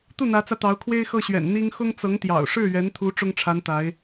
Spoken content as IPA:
t̪ u˥˩ n̪ ä˧˥ t͡s ä˧ t̪ ɑ˧˥ ʊ̯ kʰ w e˥ ɪ̯ x ɤ˥˩ ɕ ɥ ɛ̰˨˩ n n̪ i˥ ŋ x ʊ˥ ŋ t͡s ɤ˧˥ ŋ t̪ j ɑ̰˨˩ ʊ̯ ʂ ɻ̩˥˩ ɥ ɛ˧˥ n t̪ʰ u˧˥ ʈ͡ʂ ʊ˥ ŋ ʈ͡ʂʰ a˧˥ n t̪ a˧˥ ɪ̯

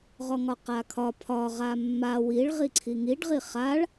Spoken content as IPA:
ʁ ɔ ŋ ɒ q a kʰ ɒ pʰ ɒ ʁ a mː a w i ɭ ʁ i ǀʰ i ŋ i ɖ ʁ i χ a ɭ

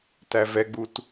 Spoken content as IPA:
t æ v ɛ ɡ͡b u t

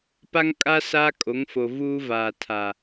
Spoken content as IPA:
p a˦ ŋ kʼ a˦ s aː˦ kʼ o˨˦ ŋ f o˨ v uː˦ v aː˨ tʰ a˨

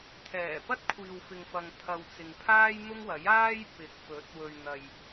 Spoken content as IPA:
t̪ʰ ɛː˨˩ p ɐ˥ t̚ kʷʰ iː˨ w f ɪ˨ ŋ f ɐ˨ ŋ t̪ʰ ɐ˨ w t͡s ɪ˨ ŋ pʰ aː˥ j n̪ ʊ˥ ŋ w ɐ˨˥ j aː˥ j p ɪ˨˥ k̚ p ɵ˨˥ t̚ w ɵ˨ ɥ n̪ ɐ˨ j

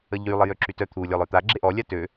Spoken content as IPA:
ə ʎ y lˠ ə j ø ǁ y t œ t̪ʰ u lʲ ɔ lˠ œ t̪ a ɡ͡ǁ e ʔ ɔ lʲ a t ø

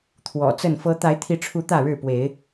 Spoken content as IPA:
t̪ʰ w ɔ̰˨˩ t͡s ə˥˨ n f ɤ˦ t̪ a˨˦ ɪ̯ t̪ʰ i˨˦ ʈ͡ʂʰ u˨˦ t̪ ä˥˨ ɻ ɻ̩˥˨ p w e˨˦ ɪ̯

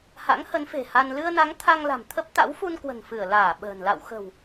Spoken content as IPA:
h a̰˧˥ ŋ h ə˨˦ n f e̤˨˩ h a˧ n l ɨ˧ ə̯ n a˨˦ ŋ t̪ʰ a˧ ŋ l a̤˨˩ m t̪ʰ ə˦˥ p̚ t̪ a̰˧˥ w f u˧ n k w ə̤˨˩ n f ɨ˧˩ ə̯ l aː˧˩ ɓ ə̤ː˨˩ n l a̰˧˨ w x ə̤˨˩ w

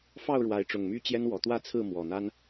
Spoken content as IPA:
f ɑ˥˨ ʊ̯ ɻ w a˨˦ ɪ̯ ʈ͡ʂ ʊ˨˩ ŋ m y˦ t͡ɕ j ɛ˦ n w ɔ˨˩ t̪ w ä˥˨ t͡sʰ ɹ̩˥˨ m w ɔ˨˩ n̪ a˦ n

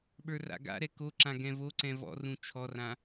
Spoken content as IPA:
ɓ ə˞ r a̰ ɡ a̰ ɾ ɛ k o ǁ ã ɡ ɛ̃ v o ǀ ɛ̃ v ɔ̰ r ũ t͡ʃʰ ɔ r ã

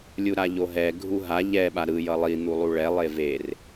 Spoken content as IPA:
lʲ u ɾ a ʎ o ɦ ɛ ɡʱ u ɦ a ʎ ɛ ɓ a ɾ ɯ j ʌ lˠ i n̪ u lˠ u ɭ ɛ lˠ e v e r

